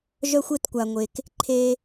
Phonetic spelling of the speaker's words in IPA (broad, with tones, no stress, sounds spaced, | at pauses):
ʒ œ˧ xʷ e˧ t kʷ a˨ ŋʷ e˨ k | ǃʰ e˧